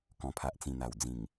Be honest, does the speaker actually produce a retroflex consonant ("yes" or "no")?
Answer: no